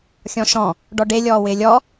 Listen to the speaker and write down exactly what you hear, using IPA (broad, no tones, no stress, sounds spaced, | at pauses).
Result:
xʲ ɔ̃ ʃ ɔ̃ | ɖ ɔ ɖ e lʲ ɔː w ɪː lʲ ɔ